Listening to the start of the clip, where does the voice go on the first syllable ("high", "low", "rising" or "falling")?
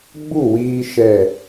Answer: falling